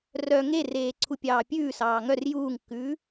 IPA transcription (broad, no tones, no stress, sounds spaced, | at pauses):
r œ ŋ e r eː ǀʰ u pʲ ɑː pʲ ʉː s ɑː ŋ œ r j uː ŋ kː ʉː